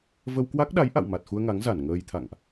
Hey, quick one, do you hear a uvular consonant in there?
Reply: no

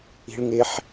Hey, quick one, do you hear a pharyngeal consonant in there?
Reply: yes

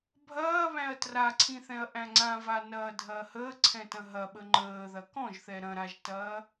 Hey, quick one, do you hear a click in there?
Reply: yes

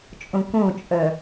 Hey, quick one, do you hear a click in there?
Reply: no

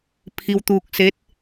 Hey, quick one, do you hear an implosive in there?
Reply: no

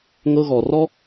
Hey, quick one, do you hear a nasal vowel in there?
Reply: no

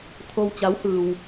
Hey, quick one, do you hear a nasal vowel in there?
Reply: no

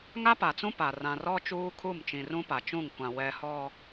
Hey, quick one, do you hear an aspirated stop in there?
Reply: yes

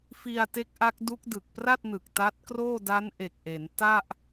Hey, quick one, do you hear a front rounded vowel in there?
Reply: no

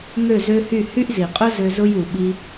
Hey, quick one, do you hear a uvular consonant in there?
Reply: yes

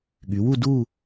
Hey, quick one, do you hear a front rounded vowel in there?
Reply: yes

